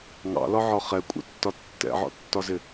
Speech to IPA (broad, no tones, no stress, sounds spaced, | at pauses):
ŋ ɑ̰ l ɒ ʕ ɒ χ ɛ kʷʼ ɛ̰ tː ɒ tː ɛ̰ ʕ ɔ̰ tː ɒ z ɪ